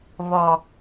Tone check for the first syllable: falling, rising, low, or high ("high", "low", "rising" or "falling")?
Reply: low